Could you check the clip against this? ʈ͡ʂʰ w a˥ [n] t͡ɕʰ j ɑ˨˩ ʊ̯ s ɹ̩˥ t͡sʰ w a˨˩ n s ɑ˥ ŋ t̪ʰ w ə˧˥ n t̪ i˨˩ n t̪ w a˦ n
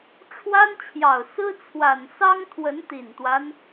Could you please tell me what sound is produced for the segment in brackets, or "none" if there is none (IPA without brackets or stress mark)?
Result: n